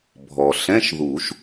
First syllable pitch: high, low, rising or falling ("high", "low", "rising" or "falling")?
low